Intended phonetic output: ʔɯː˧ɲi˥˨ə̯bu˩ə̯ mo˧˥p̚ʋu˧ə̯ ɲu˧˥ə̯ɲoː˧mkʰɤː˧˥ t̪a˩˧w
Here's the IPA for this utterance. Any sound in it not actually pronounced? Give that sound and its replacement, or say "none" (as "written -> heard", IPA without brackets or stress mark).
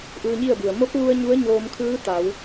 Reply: ɤː˧˥ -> ɯː˧˥